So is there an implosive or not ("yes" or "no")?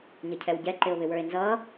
no